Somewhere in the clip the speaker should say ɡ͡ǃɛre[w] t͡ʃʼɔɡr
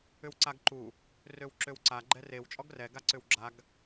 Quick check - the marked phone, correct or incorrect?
correct